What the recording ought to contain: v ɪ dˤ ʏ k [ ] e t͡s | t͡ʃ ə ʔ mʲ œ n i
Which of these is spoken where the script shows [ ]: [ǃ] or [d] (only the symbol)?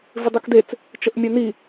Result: d